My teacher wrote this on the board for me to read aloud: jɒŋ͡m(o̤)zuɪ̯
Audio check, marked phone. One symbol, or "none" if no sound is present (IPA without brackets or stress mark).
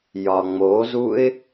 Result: o